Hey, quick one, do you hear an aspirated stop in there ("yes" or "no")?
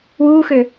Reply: no